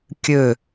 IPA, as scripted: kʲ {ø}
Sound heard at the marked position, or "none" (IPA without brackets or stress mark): ø